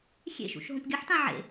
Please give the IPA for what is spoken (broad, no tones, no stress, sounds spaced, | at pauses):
xʲ ḛ ʃ ṵ ʃ ɦ õ p ɡʲ ʌ ħ t ã ʕ ḛ